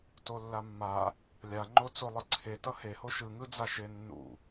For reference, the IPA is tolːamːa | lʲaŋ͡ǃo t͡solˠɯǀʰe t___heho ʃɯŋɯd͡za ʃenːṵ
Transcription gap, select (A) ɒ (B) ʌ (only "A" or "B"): B